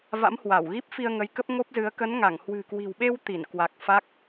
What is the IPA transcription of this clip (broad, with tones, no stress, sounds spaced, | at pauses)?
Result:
v a̰˧˥ m h w a˧˩ w ɣ i˦˥ p̚ f i˧ ə̯ ŋ ə˨˦ j k ə˦˥ p̚ ŋ o˦˥ p̚ z ɨ˨˦ ə̯ k ə˨˦ n ŋ a˧˩ ŋ h w ɨ̤˨˩ k w i̤˨˩ w ɓ e˧ w t̪ i˧˩ n k w a˨˩ k̚ f a˦˥ k̚